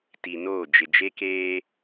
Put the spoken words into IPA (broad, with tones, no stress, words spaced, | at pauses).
ti˨noː˦˨ d͡ʒɪ˨d͡ʒe˦keː˦